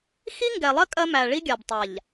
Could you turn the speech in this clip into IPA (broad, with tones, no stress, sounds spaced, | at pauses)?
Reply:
x i˦ ŋ ɡ ɛ˨ lˠ ɜ˦ kʼ ɜ˦ m æ˨ ɭ i˦ ɡʲ a˨ b tˤ a˨ ʎ